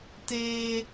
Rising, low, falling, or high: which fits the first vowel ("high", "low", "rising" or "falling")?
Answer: high